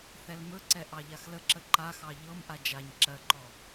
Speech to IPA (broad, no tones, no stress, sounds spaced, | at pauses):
θ ɛ l m ɵ ǀ ɛ ʔ ɑ ʎ a x l ə ǁ ə ǃ a x ɑ ʎ ɤ m ʔ a d͡ʒ a ɲ ǁ ɜ ǃ ɔ